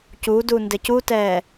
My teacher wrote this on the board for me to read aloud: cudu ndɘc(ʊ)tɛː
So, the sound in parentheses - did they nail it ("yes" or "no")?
no